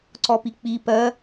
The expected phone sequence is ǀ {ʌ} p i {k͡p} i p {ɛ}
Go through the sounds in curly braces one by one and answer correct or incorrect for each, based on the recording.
incorrect: ɔ, correct, incorrect: ɜ

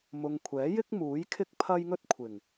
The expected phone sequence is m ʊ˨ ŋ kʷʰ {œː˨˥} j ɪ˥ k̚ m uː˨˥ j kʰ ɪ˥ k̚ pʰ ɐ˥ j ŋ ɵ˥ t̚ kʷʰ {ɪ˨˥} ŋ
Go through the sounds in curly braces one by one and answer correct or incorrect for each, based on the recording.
incorrect: ɛː˨˥, incorrect: ɪ˨˩

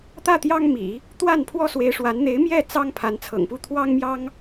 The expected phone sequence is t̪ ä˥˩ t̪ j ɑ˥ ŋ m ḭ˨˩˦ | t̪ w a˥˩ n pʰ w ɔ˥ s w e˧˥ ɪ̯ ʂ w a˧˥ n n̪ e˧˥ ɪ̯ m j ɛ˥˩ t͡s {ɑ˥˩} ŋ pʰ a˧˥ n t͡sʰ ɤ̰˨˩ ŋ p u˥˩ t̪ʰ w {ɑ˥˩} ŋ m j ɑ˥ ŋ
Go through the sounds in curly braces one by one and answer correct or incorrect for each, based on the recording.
incorrect: ɑ˥, incorrect: ɑ˥

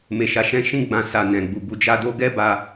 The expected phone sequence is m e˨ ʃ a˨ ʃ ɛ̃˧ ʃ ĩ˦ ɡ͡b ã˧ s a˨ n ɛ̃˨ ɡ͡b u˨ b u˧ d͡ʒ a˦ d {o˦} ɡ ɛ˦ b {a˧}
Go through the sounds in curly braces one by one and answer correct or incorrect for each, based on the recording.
correct, correct

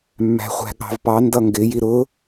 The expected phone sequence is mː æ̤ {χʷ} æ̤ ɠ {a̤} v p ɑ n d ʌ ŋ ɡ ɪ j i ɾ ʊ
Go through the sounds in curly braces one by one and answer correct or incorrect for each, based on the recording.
correct, incorrect: ɑ̤

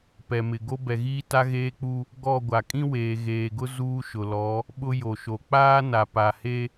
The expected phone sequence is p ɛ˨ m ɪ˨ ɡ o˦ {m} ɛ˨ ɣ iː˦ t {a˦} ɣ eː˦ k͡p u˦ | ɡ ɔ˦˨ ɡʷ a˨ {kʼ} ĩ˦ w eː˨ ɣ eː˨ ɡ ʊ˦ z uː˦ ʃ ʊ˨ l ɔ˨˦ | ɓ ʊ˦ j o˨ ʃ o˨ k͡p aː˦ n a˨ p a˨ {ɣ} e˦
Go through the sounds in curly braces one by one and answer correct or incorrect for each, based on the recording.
incorrect: b, correct, correct, incorrect: h

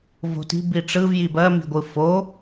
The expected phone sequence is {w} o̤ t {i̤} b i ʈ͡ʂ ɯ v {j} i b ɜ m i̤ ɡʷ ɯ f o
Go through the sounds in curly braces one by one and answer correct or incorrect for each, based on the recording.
incorrect: v, correct, correct

